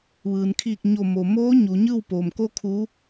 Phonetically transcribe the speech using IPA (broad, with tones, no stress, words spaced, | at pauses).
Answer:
ʋɯː˩nkʰiː˧˩k̚ ɲo˧˩mo˩ moː˧˥ ɲu˩˧ɲɯː˥˨wpoː˩m ko˧ kʰu˧˥